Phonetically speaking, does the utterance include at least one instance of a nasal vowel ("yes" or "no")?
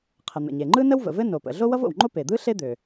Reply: no